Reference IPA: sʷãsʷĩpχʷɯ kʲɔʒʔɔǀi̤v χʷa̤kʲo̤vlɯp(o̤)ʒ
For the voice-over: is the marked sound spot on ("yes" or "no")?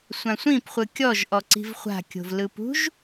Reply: no